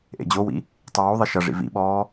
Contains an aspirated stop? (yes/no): no